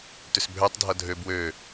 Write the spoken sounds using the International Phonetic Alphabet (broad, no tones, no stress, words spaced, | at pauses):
tʏsbʱøtˤdʱʌ dʱø bwø